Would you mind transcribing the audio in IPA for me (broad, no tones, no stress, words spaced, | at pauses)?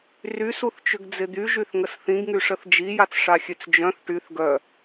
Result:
rysuθt͡ʃʏɡd͡zɪ d̪yʒyθŋəs θĩɡŋyʂəθ d͡ʒijat͡sʂaxʲøt͡s d͡ʒœ̃θ ʈyθ ɡœ